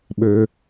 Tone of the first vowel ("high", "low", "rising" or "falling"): low